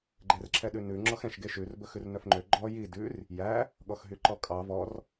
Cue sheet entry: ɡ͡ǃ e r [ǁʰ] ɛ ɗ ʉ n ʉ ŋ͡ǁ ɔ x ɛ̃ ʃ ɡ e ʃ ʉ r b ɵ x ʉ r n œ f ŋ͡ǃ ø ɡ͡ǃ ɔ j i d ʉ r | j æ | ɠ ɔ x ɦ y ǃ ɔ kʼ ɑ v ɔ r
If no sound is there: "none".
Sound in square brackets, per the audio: ǁʰ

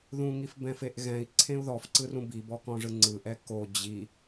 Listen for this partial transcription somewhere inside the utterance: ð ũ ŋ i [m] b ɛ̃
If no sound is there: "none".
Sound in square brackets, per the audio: f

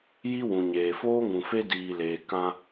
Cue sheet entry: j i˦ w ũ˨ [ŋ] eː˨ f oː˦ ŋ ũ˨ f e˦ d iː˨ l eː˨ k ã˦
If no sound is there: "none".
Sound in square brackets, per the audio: ɲ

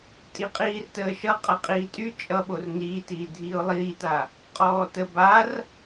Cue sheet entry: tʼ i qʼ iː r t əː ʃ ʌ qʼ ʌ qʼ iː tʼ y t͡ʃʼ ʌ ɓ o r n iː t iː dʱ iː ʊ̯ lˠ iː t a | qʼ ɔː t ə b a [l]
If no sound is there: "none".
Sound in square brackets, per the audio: r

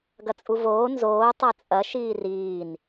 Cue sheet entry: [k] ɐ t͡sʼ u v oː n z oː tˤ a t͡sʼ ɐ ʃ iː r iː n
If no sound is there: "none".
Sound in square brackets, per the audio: ɡ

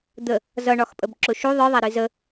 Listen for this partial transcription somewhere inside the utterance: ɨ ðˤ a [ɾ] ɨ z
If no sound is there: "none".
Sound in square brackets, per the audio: ɾ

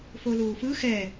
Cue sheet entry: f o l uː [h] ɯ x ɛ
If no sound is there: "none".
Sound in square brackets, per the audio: f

